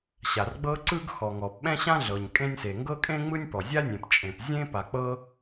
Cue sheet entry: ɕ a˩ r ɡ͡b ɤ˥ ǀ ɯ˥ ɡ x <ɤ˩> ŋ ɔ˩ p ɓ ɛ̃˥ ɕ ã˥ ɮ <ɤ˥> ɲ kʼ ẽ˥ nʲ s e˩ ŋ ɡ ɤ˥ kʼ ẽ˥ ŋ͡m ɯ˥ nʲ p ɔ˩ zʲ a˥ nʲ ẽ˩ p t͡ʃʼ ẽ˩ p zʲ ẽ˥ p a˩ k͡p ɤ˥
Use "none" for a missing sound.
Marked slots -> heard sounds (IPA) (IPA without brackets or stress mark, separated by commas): ɔ˩, ɤ˩